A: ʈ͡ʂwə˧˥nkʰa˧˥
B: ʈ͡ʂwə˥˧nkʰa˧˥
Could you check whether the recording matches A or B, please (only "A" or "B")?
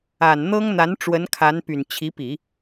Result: A